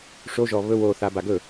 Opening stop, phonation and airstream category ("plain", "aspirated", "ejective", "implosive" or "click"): plain